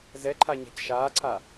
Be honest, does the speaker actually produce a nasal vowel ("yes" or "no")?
no